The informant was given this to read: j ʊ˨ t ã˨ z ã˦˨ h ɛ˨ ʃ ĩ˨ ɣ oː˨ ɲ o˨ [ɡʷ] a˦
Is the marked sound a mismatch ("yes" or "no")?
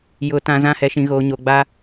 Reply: yes